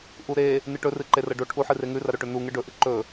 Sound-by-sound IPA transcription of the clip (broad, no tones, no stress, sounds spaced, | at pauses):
ʔ u ɾ e | n ɨ ʈ ɵ r ɨ ǃ e r ɐ ɖ o ʈʰ u ħ ɨ r e ŋ ʉ r ɐ ɾ ɵ ʈ ɵ n u ŋ ɨ ɖ ɵ ʔ ɨ ǃ ɵ